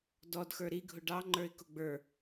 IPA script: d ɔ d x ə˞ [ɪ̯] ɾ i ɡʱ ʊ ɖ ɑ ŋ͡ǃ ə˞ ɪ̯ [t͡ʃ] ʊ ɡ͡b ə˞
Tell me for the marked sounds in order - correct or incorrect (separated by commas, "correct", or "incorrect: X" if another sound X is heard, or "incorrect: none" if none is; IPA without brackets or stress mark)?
incorrect: none, incorrect: k